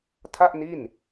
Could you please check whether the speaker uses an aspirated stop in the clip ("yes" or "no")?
yes